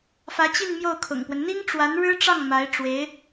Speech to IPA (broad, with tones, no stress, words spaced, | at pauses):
fä˧˥t͡ɕi˥˧n mjo˥˩ʊ̯kʰʊ̰˨˩ŋpwə˦n n̪i˥ŋʈ͡ʂwa˧˥n ɻɻ̩˥ʈ͡ʂɑ˥˩ŋ ma˧˥ɪ̯ ʈ͡ʂwe˧˥ɪ̯